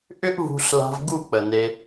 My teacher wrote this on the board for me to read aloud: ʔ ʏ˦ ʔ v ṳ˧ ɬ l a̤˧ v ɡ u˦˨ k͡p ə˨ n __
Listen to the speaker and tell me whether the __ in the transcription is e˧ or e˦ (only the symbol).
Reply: e˧